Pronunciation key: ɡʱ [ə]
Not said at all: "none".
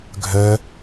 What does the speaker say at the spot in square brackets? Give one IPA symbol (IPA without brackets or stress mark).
œ